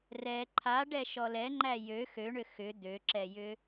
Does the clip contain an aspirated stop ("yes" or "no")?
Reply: yes